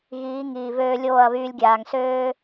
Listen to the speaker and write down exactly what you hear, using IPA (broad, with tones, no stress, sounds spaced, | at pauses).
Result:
ɣ iː˨˦ ŋ iː˨ v øː˧ lʲ oː˦˨ ɐ̯ β yː˧ lʲ ɡʲ aː˨ ŋ s øː˦